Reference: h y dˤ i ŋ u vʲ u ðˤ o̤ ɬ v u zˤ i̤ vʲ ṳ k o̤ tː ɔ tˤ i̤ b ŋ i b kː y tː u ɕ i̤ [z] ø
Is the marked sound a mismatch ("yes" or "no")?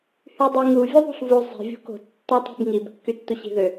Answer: yes